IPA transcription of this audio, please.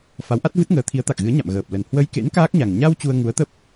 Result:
f a˨˦ w ʔ a˦˥ t̚ v ɨ˦˥ t̚ ŋ əː˨˦ t̪ʰ i˨˦ ə̯ t̪ a˨˩ k̚ ɣ ɨ˨˦ ə̯ ɲ a̰˧˨ m ɣ əː˨˩ p̚ l ə˨˩ n h w ə˧ j k ḛ˧˥ n k aː˦˥ k̚ ɲ a˨˩ ŋ ɲ a˧ w t͡ɕ u˧ ə̯ ŋ u˨˦ ə̯ t̪ ə˦˥ p̚

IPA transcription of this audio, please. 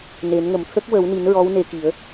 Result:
n e˨˩˦ n ŋ ə˨˩ m t̪ʰ ə˦˥ k̚ w ə˨˩˦ w n i˨˩˦ n ɹ ɔ˧˥ w n e˧ k i˨˩˦ ə̯

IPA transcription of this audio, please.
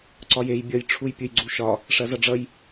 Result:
ǀ ɒ j e j bʲ ʌ j ʈ͡ʂʰ u j pʲ u j ɡ͡ǀ u ʃ ɒ | ʂ ɐ z ʌ ɖ͡ʐ ʌ j

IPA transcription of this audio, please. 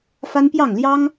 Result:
f a˦ n p j ɑ˥˨ ŋ l j ɑ˦ ŋ

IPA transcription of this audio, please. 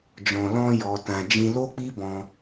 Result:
d͡ʒ ɔ̃˨ l ɔ̃˧ j ɔ˨ t ã˨ d͡ʒ ĩ˧ l o˦ k͡p i˦ b ɔ̃˧

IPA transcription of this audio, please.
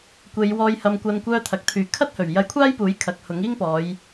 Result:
kʷ e˨˧ j w ɔː˨ j h ɐ˨ m kʷ ɐ˨˧ n kʷ œː˧ t̪ʰ ɐ˨ k̚ t̪ʰ yː˨˧ kʰ ɐ˥ t̚ h ɵ˨˩ ɥ j ɐ˧ j kʷʰ aː˥ j p uː˨˥ j kʰ ɐ˨ k̚ h ʊ˨˥ ŋ iː˥ ŋ p ɔː˨˧ j

